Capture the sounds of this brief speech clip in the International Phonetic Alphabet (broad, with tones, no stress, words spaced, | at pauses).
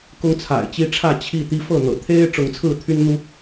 kʊ˦ŋt͡sʰa̰˨˩ɪ̯t͡ɕi˦ʈ͡ʂʰä˥˨ t͡ɕʰi˥˨ t̪i˦fɤ˥˨n̪ɤ̰˨˩ t̪ʰe˦ɪ̯ ʈ͡ʂʊ˨˦ŋt͡sʰɹ̩˥˨t̪ʰy˦nn̪u˦